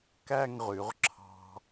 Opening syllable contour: falling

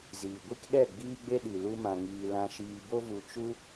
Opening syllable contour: low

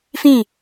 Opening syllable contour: falling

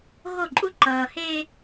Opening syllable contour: falling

